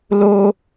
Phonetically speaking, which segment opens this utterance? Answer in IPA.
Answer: l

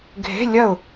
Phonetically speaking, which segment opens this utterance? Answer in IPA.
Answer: ɡʱ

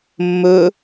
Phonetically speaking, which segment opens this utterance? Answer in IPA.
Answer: mː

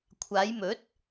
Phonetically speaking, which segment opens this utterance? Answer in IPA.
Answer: kʷʰ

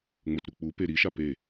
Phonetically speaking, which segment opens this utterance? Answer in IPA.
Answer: ŋ͡m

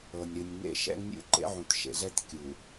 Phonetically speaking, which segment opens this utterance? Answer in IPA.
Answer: ɤ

